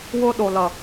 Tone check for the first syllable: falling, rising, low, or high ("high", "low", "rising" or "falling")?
high